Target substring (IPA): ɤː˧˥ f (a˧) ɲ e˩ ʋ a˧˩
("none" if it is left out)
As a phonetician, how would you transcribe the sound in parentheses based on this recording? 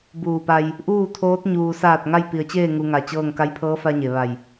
a˧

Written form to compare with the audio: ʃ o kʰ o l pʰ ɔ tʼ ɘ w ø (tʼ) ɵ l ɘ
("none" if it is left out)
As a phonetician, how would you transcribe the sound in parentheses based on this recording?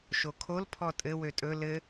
tʼ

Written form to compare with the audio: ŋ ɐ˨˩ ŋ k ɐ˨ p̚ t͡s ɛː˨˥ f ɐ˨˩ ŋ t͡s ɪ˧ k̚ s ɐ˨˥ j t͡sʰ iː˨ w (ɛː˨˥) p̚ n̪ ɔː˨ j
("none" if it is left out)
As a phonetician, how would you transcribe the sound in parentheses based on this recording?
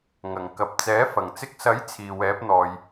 ɛː˨˥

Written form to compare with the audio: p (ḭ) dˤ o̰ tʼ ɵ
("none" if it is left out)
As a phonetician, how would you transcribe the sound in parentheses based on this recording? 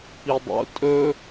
i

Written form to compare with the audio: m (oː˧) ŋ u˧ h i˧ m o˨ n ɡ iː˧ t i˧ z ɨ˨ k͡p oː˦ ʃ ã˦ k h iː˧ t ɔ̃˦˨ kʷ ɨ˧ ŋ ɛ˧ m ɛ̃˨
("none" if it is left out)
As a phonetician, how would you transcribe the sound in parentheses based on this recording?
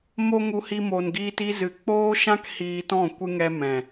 o˧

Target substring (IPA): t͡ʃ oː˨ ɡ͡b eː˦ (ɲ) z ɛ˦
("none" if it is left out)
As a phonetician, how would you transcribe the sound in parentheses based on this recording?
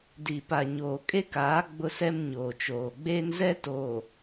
n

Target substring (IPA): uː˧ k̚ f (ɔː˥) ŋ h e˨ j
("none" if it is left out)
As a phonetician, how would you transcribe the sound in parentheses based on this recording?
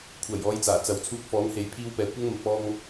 ɔː˨˥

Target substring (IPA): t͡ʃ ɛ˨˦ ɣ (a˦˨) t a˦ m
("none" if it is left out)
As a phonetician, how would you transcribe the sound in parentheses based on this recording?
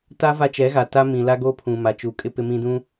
a˨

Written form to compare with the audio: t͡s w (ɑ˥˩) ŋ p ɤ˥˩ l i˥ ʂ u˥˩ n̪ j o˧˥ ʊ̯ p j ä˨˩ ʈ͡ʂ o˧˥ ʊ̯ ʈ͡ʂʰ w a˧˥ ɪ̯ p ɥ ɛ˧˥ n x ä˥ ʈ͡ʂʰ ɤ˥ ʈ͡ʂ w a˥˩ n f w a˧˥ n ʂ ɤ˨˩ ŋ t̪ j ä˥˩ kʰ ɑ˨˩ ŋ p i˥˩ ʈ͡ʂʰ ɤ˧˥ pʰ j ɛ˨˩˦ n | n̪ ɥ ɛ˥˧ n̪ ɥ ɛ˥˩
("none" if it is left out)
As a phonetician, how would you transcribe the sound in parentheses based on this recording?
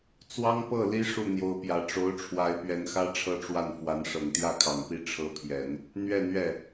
ɑ˥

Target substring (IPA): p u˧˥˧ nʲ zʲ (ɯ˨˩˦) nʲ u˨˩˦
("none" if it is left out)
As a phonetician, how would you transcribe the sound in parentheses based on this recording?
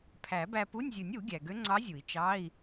ɯ˨˩˦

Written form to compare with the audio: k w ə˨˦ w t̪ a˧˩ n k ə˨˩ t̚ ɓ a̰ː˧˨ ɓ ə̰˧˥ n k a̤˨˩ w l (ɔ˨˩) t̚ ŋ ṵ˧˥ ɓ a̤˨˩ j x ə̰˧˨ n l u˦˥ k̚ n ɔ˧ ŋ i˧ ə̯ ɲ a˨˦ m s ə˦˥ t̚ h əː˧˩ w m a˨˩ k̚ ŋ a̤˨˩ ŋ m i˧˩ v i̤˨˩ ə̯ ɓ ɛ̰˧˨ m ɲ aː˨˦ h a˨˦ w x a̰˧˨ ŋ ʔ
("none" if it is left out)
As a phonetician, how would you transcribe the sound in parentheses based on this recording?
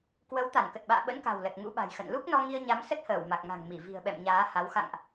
ə˨˩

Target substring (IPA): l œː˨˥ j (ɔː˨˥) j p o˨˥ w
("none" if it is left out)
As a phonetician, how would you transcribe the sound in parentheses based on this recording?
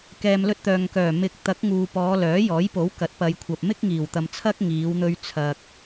ɔː˨˥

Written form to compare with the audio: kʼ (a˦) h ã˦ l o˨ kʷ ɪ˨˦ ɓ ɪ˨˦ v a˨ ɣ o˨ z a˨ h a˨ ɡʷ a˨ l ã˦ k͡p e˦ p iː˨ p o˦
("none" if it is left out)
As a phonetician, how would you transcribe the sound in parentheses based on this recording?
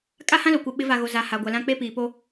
a˦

